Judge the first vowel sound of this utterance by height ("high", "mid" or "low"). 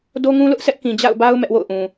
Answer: mid